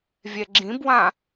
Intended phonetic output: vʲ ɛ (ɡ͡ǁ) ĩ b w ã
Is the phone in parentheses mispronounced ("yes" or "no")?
no